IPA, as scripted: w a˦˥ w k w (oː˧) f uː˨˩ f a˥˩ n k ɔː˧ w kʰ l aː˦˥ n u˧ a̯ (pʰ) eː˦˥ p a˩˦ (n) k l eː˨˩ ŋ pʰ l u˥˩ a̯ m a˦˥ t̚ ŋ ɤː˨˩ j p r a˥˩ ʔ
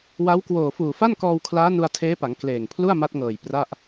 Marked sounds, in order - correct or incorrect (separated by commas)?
incorrect, incorrect, incorrect